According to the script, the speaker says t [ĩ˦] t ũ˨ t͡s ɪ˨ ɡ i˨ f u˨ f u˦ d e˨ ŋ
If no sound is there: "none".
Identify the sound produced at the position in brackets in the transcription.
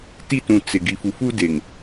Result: i˦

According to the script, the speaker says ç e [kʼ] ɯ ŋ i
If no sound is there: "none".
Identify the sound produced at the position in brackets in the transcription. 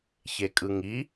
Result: kʼ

